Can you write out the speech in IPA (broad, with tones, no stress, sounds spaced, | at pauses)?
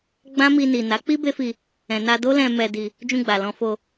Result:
ɡ͡b ã˦ m i˧ n i˨ n a˨˦ k͡p i˦ b e˦ f i˧ | ɛ̃˨ n a˧ d o˦ l ɛ̃˧ m ɛ˧ d i˧ | d͡ʒ ũ˧ ɡ͡b a˨ l ɔ̃˧ f o˧